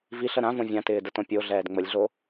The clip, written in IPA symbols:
v i ɬ ə ɾ ã v õ vʲ ã t ɪː d ə t õ pʲ o ɮ ɛː d ŋ͡m ə lʲ ɮ o

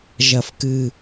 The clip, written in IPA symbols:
ʒ ɐ˨˩ f k ɨ˨˩

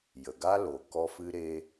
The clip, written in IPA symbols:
j ə˨ ɡ a˦ l o˨ k ɔ˦ f ɨ˦ ɾ e˦

